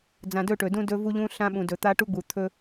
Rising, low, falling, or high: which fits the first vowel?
low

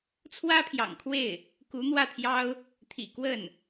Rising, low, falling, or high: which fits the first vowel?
high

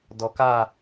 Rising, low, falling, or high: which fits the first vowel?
low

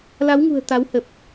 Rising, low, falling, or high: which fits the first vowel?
rising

